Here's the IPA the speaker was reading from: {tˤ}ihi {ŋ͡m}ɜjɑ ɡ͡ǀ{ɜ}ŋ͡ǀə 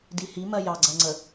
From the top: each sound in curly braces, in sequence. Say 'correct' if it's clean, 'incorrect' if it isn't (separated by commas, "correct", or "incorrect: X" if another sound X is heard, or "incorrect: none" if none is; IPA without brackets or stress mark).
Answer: incorrect: d, incorrect: m, correct